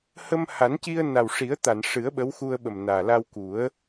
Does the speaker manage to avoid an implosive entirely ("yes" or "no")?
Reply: no